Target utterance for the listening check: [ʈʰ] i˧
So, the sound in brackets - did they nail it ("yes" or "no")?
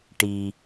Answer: no